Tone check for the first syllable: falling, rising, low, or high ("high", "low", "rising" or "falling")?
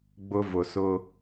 high